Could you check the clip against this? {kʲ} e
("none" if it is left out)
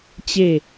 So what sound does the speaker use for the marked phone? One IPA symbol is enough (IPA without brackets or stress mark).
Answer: t͡ɕ